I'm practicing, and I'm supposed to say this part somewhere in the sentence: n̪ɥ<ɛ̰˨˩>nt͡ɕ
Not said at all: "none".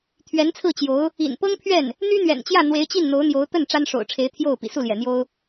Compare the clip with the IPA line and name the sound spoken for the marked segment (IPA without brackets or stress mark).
ɛ̰˨˩